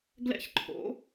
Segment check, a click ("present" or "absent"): present